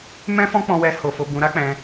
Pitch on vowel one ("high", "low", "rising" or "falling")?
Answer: high